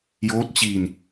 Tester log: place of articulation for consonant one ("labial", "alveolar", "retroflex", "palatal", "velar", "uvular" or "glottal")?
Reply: palatal